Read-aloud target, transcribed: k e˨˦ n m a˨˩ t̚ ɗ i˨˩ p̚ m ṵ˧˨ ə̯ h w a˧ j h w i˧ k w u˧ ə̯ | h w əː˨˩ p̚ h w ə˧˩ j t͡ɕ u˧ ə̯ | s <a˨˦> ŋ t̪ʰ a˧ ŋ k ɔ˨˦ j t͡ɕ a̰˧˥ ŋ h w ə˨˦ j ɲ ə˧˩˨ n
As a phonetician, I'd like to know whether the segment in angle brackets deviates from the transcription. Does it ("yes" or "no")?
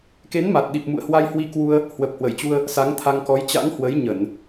no